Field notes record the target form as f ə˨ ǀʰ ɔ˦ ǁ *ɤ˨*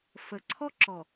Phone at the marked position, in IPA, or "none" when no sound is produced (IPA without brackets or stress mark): ɔ˨